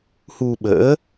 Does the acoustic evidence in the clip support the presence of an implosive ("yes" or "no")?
yes